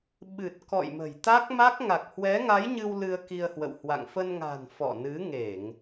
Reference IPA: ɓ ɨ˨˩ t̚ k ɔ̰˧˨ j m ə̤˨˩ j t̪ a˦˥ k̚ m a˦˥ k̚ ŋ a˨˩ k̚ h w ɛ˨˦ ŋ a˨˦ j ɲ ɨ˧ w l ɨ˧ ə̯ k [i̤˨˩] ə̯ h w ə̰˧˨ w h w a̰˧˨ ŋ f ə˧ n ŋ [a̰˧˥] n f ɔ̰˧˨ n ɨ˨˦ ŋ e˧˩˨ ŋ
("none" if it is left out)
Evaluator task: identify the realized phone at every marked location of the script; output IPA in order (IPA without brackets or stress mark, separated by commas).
i˧, a̤˨˩